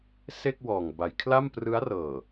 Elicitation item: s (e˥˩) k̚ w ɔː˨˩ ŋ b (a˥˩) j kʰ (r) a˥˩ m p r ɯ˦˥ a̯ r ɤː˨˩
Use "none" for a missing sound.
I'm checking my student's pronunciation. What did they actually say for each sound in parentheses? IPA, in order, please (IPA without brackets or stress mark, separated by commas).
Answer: e˥˩, a˩˦, l